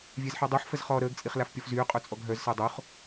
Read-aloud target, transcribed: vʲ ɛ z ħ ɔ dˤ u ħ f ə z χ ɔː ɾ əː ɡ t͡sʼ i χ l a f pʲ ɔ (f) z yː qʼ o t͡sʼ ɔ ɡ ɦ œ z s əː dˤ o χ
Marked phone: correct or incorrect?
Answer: correct